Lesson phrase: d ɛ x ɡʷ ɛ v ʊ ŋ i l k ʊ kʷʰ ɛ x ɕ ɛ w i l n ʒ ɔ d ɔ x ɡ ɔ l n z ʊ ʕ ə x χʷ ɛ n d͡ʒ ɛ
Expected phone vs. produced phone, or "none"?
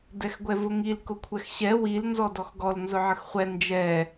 ʒ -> z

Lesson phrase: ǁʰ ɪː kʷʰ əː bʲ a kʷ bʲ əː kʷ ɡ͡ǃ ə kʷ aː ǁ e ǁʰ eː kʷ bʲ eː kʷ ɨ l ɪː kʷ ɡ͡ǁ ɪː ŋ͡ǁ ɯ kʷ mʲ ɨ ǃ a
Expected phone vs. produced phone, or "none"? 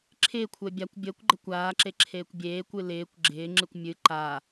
none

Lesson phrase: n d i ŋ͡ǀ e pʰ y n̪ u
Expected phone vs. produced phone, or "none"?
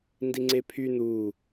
none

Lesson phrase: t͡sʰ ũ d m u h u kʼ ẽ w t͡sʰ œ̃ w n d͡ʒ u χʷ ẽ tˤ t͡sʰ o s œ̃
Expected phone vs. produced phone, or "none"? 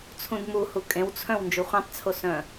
none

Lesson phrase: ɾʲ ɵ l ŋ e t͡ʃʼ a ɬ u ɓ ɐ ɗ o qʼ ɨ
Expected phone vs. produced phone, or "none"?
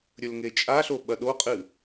u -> o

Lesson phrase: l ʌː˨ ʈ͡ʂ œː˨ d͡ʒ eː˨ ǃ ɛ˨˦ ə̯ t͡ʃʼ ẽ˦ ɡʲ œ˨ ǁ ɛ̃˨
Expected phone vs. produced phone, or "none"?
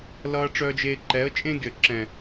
none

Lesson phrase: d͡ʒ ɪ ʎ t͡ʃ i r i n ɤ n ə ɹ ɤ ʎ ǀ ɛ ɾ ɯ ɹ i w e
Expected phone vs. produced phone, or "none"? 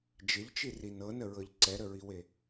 ɯ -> ə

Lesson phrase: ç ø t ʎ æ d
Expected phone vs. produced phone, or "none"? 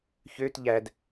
none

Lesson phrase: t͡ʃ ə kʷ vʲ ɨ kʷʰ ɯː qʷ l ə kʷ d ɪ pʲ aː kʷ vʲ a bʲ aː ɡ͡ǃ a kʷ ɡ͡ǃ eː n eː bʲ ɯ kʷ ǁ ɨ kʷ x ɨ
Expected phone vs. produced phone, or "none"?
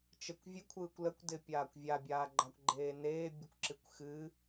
qʷ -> kʷ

